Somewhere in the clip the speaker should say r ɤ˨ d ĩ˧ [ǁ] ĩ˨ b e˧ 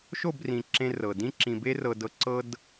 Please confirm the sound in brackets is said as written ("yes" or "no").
yes